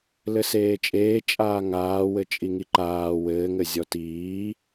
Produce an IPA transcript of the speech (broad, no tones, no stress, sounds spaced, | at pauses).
l ɘ s eː t͡ʃʼ eː t͡ʃʼ aː ŋ aː w ɘ t͡ʃʼ i ŋ i ǃ aː w ɘː ŋ ɘ zʲ ɔ t iː